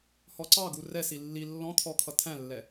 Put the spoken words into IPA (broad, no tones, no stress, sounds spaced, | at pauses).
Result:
h ɔ ǀ ɑ ɡ u r ɛ s i lː i lː ɔ̃ t̪ʰ ɔ kʰ ʌ tʰ æ̃ lː ɛ